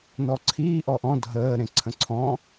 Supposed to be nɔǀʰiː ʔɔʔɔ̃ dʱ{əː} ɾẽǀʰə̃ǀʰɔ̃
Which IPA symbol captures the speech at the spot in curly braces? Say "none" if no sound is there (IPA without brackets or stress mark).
əː